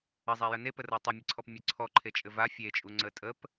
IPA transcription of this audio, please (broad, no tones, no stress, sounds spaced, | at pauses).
ə zˤ a j ə n e p ə r ɤ tˤ ɘ mʲ ɘ ǀʰ ɔ p mʲ ə ǀʰ ɔ ǃʰ e t͡ʃʼ ɘ v a fʲ e t͡ʃʼ u ŋ͡ǀ ə tʼ ə p